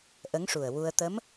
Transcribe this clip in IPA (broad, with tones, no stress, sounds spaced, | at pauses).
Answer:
ʔ ə˧˥ ŋ ʂ u˨˩ ə̯ w u˧ ə̯ t̪ ə˧˥ m